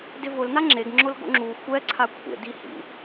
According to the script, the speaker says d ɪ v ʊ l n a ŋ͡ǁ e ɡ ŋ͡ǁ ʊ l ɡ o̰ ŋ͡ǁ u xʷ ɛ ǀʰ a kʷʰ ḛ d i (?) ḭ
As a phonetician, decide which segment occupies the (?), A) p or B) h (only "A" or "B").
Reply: B